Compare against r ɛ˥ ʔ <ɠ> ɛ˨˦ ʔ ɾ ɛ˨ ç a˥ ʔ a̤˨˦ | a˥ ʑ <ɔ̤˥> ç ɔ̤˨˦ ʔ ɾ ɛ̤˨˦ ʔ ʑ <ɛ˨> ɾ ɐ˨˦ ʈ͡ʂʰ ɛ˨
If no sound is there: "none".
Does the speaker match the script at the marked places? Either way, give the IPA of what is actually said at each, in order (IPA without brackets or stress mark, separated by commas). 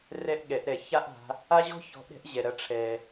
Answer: ɠ, ɔ̤˥, ɛ˨